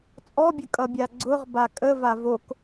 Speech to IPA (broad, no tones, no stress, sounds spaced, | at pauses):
t͡sʼ ɔ bʲ ə kʼ ʌ bʲ a ɡ͡ǀ ʊ ʁ b a kʼ ə v a v o k